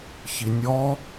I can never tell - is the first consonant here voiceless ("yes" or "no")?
yes